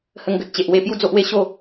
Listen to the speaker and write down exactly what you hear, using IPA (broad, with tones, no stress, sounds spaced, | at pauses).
h ə˧ ŋ ɡ ə˦ t̚ t͡ɕ e˨ ʔ w e˧ p j u˦ d͡z o˦ ʔ w e˥˧ ɕ o˥˧